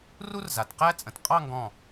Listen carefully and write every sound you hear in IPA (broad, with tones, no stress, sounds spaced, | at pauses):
r u˥ r z a˩˧ t q æ˥ t͡sʼ ə̃˩˧ t qʼ ɑ˥˧ ŋ ɡ ɔ̃˧˩